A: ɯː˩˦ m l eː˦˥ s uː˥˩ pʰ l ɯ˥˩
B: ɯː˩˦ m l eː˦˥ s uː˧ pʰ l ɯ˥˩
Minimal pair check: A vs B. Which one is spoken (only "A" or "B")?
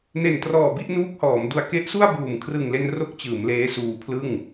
B